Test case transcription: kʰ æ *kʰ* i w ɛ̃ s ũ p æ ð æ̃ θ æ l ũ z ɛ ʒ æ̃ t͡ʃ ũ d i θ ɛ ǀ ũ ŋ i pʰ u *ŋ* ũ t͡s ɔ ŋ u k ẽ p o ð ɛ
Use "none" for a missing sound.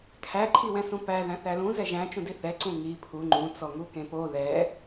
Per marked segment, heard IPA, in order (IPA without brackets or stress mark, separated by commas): ǃʰ, ŋ͡ǃ